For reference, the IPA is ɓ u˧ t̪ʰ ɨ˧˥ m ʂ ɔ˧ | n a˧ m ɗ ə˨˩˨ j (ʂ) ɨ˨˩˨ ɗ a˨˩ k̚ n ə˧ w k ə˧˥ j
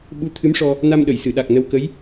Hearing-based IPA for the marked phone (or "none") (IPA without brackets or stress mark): s